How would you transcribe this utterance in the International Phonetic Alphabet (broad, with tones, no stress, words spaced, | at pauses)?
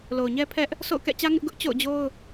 lo˨ʊ̯ɲɛ˦pʰɛ˦ʔ | sʰo̰˦˨ʊ̯kɛ̰˦˨t͡ɕä˦ ŋɪ˦ʔɡʊ˦ʔ t͡ɕo̰˦˨ʊ̯d͡ʑo˦ʊ̯